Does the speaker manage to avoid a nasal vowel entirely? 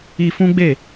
no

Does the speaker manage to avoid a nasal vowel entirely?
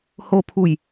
yes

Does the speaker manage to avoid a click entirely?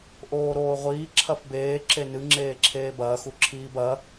no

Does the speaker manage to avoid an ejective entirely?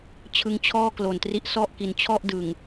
yes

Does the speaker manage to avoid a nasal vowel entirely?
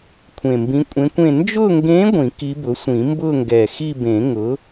no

